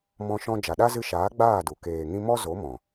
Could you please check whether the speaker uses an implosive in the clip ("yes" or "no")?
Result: yes